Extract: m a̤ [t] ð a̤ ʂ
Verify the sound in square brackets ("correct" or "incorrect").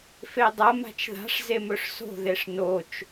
incorrect